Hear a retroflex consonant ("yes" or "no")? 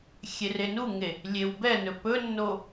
no